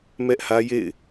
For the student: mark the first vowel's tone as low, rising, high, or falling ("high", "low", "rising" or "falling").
high